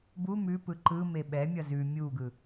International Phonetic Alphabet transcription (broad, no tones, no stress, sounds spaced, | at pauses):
b u m ʉ p ɯ ǃ ɯ m e ɓ ɛ mʲ ʌ z ʉ mʲ u ɡ ɯ